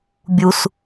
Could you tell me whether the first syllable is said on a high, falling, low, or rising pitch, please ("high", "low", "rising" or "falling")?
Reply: high